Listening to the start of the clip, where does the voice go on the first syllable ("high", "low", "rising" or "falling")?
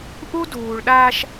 high